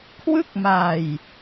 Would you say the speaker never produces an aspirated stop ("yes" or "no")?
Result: no